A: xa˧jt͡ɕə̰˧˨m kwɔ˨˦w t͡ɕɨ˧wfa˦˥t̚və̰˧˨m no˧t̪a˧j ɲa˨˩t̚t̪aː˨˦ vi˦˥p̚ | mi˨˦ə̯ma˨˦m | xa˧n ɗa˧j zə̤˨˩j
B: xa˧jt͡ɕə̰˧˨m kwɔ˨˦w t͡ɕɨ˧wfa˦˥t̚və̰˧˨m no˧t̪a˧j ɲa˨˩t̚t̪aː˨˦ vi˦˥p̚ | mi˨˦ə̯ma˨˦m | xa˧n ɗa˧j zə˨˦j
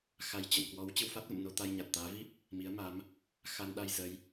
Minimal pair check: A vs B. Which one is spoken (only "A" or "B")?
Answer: B